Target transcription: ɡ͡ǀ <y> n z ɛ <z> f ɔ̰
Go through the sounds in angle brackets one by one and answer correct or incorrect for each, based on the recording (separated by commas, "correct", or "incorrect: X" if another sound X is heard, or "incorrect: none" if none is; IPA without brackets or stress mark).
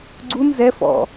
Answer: incorrect: u, incorrect: none